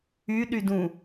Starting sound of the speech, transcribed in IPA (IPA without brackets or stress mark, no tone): y